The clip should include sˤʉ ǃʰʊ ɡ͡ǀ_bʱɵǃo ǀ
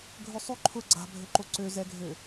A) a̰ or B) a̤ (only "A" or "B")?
B